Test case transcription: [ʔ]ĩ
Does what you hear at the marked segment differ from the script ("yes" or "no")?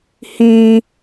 yes